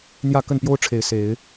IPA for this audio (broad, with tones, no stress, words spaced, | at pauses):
n̪jä˥˨kə˥˨npjo˦ʊ̯ʈ͡ʂʰe˨˦ɪ̯ se˨˦ɪ̯